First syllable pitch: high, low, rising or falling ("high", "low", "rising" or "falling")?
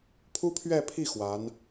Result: high